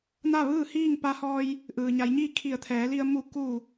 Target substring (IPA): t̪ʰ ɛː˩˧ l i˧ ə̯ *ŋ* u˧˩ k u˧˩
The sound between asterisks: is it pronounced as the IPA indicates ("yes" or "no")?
no